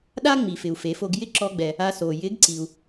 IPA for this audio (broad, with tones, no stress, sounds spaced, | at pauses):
ɗ a˥ ŋ͡m i˩ f ɪ˩ u̯ f e˩˧ f o˧ ɡ j ɪ˥ ǁ ɔ˧ ɡ͡b ɛ˩ | a˧ s o˩ j ɪ˧˥ ɡ ǀ i˩ u̯